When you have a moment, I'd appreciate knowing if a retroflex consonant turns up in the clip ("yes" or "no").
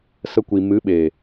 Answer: no